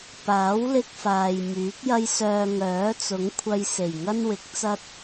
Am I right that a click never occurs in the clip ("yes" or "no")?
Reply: yes